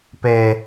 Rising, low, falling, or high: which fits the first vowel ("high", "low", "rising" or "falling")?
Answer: low